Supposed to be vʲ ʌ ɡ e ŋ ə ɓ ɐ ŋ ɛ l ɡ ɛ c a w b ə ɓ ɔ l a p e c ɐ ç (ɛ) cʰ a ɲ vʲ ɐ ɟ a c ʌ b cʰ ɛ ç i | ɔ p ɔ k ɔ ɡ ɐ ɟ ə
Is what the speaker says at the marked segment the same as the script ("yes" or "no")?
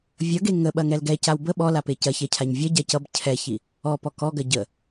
yes